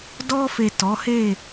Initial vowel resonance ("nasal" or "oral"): oral